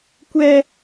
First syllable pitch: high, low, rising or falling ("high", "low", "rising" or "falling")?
high